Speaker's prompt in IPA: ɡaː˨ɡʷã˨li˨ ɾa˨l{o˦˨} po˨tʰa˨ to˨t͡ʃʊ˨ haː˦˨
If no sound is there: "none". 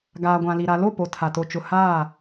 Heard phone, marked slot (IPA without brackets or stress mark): o˦˨